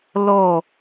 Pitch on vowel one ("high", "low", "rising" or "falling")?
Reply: falling